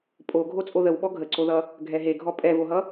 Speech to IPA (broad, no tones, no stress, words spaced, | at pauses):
pʼo ɡʱot͡sʼoðəw ɓɔɡʱəǀoðʌ | ɡʱɛɦeɡʱɔ pʼɛvoɦʌ